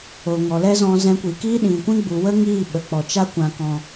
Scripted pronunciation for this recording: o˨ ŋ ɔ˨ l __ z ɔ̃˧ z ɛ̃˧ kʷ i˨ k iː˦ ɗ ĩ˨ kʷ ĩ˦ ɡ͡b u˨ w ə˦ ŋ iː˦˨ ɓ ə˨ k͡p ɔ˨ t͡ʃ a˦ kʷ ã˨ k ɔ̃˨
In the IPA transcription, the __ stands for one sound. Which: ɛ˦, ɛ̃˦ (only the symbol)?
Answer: ɛ˦